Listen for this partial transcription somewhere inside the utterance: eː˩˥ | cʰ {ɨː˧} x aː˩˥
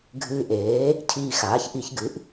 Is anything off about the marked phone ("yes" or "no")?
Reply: yes